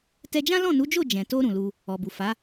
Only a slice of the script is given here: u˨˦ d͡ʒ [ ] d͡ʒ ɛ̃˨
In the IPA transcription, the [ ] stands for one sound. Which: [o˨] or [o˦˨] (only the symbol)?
o˦˨